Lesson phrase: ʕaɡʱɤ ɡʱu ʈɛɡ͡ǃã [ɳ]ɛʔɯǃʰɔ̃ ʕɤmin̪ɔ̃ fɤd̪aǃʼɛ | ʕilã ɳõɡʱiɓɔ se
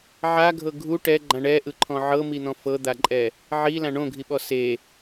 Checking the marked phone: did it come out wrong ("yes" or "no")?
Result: no